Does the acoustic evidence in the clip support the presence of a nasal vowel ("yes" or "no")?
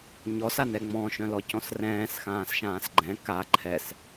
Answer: yes